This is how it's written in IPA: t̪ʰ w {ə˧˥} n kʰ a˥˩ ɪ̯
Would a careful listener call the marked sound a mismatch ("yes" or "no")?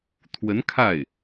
no